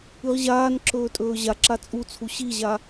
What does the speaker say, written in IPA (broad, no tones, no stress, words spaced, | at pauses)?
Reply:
ɨʁʑaːnǁɵː tʼɵːʑaǁa t͡sʼut͡sʰu ɕiʑa